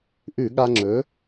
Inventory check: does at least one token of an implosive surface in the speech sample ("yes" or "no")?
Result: yes